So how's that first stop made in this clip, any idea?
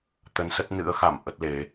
plain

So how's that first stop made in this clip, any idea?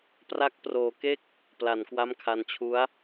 plain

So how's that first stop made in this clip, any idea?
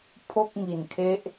aspirated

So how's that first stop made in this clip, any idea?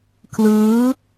aspirated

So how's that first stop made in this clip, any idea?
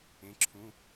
click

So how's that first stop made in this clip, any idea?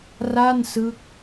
plain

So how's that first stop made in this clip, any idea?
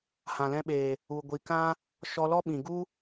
implosive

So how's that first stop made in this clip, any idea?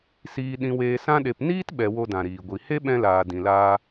implosive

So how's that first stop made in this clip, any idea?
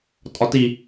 ejective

